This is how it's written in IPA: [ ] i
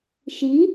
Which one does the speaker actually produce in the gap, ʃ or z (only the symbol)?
ʃ